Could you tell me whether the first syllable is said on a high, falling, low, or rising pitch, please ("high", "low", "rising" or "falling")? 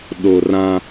low